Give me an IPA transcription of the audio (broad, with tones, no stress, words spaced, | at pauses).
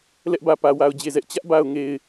lɛ˦ʔbä˨pä˨ wa˨ʊ̯d͡ʑe˨zɛ˦ʔ t͡ɕä˦ʔba˨ʊ̯ ŋe˨ɪ̯